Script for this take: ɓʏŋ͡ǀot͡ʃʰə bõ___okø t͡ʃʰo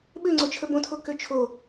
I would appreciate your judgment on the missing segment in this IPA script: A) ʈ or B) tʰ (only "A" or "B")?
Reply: B